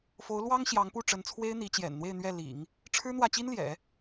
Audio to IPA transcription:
fo˧˥ʊ̯lwɑ˥ŋ ɕjɑ˧˥ŋpu˥˩ʈ͡ʂə˧˥n t͡sʰwe˥ɪ̯n̪i˧˥t͡ɕjɛ̰˨˩nn̪we˥˧ɪ̯ n̪ɥɛ˥˩ lḭ˨˩˦ŋ | ʈ͡ʂʰɻ̩˥n̪wä˥˩t͡ɕi˥n ljɛ̰˨˩˦

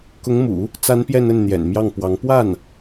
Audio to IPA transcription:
kʊ˧˥ŋmṵ˨˩˦ | t͡sa˧˥n pjɛ˥˧nə˥˩nn̪jɛ̰˨˩n mjɑ˥˩ŋpwɑ˧˥ŋ pwa˥˩n

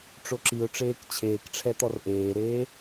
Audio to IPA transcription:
ʈ͡ʂoǁiʊ̯ʈ͡ʂeːk t͡ɕʰeːkʈ͡ʂʰɛ t̪ɔrʔeːɾeː

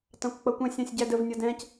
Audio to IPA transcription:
tɑ̃kʷk͡pʌkʷɛ̃sʲɑ̃sʲ ɟædəv nʲʌdɛ̃c

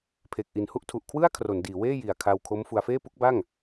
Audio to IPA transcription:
pʰe˨˩k̚ʔi˨˩nhu˥˩ʔ tʰu˨˩ʔkʰwɯ˥˩a̯ kʰro˩˦ndiː˩˦weː˥˩ ji˨˩a̯kʰa˧w kʰo˦˥mfu˧a̯ feː˥˩pu˦˥k̚ba˥˩ŋ

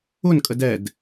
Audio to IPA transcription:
ʊn kʼədɛd

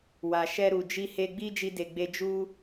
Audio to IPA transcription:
wa˨ʃɛ˧ɾu˨ d͡ʒi˧he˧ ɡ͡bi˦d͡ʒi˧de˨ ɡ͡be˧d͡ʒu˦

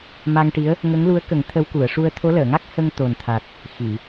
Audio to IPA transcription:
ma˧ŋʈi˧˥ə̯ | ŋə˧˥ŋlu˧˥ə̯kə˨˩˦ŋ t̪ʰə˧˥wku˨˩˨ə̯ʂu˧ə̯ t̪ʰo˧˥ləː˨˩˨ŋa˦˥k̚ hə˧ŋt̪o˨˩nt̪ʰa˨˩t̚ | xi˨˩˨

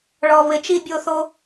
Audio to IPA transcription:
ɭɔ˧βɪ˧ t͡ʃi˧bʲo˧θo˧

